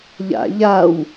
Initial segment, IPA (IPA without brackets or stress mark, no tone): ʎ